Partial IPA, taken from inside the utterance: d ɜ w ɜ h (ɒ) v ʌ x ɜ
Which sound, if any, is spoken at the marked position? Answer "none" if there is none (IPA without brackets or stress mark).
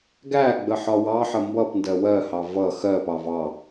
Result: ɑ